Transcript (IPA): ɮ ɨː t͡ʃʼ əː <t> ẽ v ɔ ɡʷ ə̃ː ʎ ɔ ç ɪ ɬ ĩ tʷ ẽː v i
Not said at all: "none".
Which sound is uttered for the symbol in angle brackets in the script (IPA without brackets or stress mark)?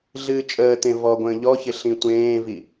t